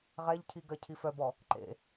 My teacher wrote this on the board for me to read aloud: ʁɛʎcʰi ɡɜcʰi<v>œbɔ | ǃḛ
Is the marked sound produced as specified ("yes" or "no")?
no